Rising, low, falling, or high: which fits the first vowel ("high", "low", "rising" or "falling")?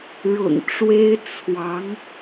low